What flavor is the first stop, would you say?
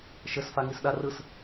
implosive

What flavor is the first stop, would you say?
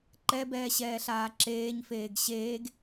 click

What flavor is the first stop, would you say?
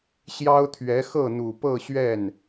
aspirated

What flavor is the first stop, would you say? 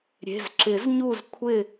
click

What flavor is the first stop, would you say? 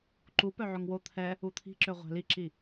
click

